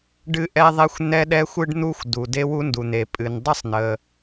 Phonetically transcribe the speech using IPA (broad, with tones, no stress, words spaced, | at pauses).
ɖɨ˥ʔɛ˥ðˤɛ˥xʷ n̪ɛ˥ɗɛ˥xʷɨ˥ɖ n̪u˥xʷ du˩ de˥wu˥ndu˩n̪e˩ pʼɨ˩ndˤə˥sˤn̪ə˩